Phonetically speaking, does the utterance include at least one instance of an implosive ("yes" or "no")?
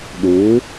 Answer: yes